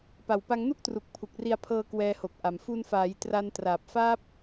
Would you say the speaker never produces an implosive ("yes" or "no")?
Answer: yes